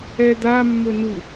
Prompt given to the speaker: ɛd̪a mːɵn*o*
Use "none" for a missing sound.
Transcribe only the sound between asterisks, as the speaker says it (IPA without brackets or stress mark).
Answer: u